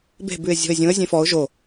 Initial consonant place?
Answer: labial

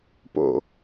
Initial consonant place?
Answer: labial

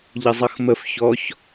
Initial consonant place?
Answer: palatal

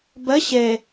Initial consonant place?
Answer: labial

